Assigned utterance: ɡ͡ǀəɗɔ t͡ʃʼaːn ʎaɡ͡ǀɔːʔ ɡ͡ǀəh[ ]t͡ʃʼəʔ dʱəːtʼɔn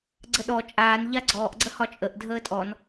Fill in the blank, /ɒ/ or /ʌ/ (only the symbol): ɒ